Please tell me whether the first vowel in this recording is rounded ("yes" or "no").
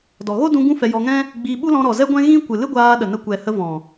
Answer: yes